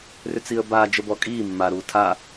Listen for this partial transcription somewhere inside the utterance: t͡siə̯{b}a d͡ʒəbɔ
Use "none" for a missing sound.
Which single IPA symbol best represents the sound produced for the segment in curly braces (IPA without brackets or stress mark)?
b